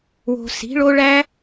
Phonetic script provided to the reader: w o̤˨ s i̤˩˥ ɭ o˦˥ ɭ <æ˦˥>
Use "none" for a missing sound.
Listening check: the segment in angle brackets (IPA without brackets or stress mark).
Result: æ˦˥